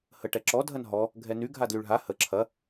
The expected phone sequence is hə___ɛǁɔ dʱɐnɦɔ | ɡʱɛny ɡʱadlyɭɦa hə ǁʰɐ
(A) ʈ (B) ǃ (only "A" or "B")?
A